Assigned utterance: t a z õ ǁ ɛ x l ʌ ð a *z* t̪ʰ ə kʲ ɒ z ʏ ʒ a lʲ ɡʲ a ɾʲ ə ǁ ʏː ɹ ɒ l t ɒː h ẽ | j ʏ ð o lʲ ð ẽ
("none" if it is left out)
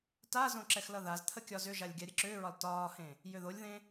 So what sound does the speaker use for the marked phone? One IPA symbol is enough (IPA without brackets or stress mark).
z